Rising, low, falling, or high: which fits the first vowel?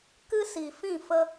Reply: high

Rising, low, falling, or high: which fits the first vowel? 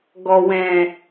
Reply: low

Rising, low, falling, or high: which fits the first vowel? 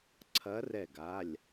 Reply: rising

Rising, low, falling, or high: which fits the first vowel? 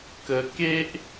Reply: low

